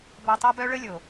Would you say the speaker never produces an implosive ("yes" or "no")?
yes